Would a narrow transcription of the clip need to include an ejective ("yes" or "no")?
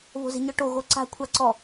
no